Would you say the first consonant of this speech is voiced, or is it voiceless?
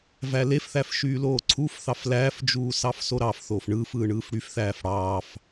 voiced